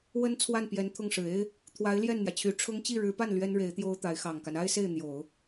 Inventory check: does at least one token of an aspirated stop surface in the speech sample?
yes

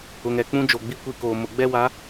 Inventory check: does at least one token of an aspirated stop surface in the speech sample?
no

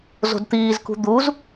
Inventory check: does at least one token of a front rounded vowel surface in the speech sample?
no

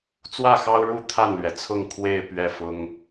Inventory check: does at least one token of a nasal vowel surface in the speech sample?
no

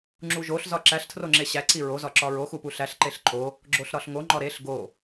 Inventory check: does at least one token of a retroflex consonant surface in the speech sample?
no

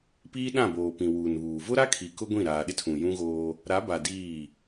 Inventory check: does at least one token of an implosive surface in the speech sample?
yes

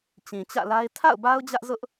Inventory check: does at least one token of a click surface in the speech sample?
no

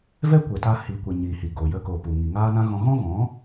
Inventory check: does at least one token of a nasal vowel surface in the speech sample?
yes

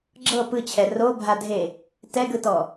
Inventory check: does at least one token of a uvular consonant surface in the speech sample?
no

